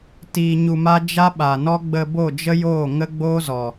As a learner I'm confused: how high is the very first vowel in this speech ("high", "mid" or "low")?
high